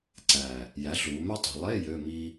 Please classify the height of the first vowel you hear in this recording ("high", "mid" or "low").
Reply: low